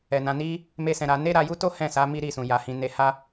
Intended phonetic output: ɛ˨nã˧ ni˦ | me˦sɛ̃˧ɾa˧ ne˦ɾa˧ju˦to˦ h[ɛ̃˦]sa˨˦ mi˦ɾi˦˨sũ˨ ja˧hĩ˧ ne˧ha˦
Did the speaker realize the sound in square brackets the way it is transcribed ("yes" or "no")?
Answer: no